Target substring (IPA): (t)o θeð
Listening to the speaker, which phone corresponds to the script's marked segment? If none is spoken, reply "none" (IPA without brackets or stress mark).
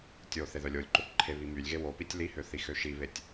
tʲ